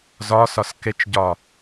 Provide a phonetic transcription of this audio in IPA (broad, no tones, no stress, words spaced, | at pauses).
zɒsɒs ket͡ʃɟɒ